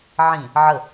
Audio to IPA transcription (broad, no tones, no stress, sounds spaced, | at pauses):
ʕ ĩ | ʕ ə